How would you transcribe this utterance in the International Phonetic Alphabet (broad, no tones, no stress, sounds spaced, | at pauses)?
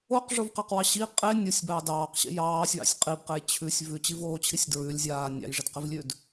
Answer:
o q ʐ o v q a q w ɑ ɕ i qʼ e nʲ o sʲ b ɑ d ɑː q ɕ ḛ j ɑː sʲ w ɑ̰ sʲ qʼ i b q e j t͡ɕʰ ʉ sʲ v ʉ t͡ɕ i v oː t͡ɕʰ i sʲ d ɹ ʉ lʲ zʲ aː nʲ ɑ̰ j ʐ ɪ d q ɪ v lʲ ʉ d